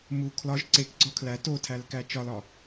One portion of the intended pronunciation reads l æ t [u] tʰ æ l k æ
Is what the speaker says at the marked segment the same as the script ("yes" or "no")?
no